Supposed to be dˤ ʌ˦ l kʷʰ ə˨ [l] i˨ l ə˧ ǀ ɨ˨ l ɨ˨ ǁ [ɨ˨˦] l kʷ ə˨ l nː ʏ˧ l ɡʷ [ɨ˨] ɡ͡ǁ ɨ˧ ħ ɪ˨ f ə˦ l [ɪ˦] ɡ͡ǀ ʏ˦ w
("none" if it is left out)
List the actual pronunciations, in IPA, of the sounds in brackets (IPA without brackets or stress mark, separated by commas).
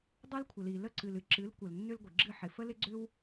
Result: l, ɨ˨˦, ɨ˨, ɪ˦